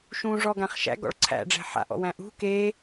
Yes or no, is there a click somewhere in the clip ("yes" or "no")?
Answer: yes